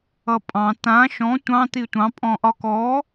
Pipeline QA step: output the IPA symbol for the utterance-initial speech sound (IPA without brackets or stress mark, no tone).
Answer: ʌ